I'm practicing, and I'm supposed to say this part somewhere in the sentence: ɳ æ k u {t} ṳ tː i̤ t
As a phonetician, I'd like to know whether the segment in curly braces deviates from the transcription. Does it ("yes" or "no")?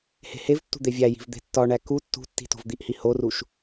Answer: yes